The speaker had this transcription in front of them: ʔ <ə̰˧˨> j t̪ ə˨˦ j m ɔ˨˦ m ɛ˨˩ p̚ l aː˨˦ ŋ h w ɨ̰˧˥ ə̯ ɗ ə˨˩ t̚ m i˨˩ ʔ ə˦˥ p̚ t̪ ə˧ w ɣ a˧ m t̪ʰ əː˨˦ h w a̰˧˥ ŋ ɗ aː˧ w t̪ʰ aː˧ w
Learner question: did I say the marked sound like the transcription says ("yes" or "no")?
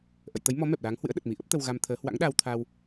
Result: yes